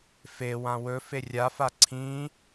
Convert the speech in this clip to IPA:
fe wãwɵfe rʲafa ǀʰĩ

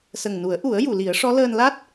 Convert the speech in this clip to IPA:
sə˨˩ŋnu˨˩˦ə̯ʔu˨˩˦ə̯ ju˨˩˨li˨˩˦ə̯ʂɔ˧˥ ləː˧nla˦˥t̚

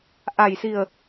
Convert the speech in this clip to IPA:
ʔa˨˩jsi˨˩ə̯

